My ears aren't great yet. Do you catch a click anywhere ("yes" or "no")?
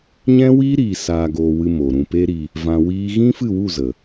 no